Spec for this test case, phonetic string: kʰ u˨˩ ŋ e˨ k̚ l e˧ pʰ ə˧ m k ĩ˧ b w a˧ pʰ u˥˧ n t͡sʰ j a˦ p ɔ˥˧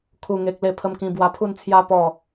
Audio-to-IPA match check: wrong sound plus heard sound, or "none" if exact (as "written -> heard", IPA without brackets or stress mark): none